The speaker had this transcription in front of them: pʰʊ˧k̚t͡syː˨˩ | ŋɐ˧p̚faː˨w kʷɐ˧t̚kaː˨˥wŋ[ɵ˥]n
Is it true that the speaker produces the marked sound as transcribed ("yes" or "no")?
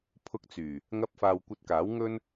yes